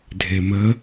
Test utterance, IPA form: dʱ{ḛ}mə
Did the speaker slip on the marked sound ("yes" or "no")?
yes